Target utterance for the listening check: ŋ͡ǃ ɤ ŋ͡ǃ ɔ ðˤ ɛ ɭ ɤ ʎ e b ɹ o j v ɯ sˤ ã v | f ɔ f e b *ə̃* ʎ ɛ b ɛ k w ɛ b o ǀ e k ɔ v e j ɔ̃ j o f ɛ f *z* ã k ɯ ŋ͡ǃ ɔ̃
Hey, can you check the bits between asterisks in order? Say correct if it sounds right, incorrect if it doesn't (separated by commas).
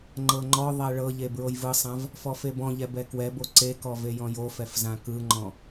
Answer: incorrect, correct